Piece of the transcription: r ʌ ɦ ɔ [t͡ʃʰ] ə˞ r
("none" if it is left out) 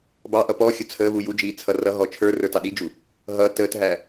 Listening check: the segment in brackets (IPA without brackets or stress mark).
t͡ʃʰ